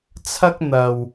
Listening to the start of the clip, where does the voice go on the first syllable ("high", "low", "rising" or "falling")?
high